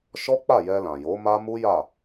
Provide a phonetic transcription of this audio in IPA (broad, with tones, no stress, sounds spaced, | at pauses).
ʃ ɔ˦ k͡p a˦˨ j ɛ˧ l ã˨ j o˨˦ m a˦ m u˦ j a˦˨